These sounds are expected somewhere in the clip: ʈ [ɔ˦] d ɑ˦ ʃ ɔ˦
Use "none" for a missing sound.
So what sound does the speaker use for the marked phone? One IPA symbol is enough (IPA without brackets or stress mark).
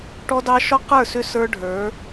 ɔ˦